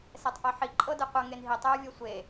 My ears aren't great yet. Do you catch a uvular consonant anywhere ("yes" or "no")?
yes